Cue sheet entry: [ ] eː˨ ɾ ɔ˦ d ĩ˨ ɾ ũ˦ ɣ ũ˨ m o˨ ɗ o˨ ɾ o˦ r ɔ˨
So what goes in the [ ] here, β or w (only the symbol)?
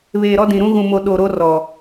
β